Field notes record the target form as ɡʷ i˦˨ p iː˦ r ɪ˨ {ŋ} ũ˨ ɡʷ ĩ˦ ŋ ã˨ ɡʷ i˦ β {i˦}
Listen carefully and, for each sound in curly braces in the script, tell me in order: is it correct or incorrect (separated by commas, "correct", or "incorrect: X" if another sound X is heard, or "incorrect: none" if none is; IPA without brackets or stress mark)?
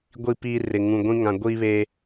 correct, incorrect: e˦